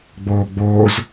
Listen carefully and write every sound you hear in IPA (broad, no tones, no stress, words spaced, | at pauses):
ɡ͡boːɡ͡boːz